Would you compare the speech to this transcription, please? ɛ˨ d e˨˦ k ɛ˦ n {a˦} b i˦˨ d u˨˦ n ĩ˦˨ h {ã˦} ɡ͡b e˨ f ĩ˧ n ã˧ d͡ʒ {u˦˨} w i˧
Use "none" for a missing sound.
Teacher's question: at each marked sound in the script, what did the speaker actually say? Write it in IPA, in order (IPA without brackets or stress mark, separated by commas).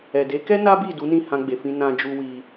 a˦, ã˧, u˧